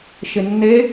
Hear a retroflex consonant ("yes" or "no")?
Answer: no